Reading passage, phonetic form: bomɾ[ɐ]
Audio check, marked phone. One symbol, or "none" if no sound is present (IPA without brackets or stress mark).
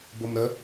ə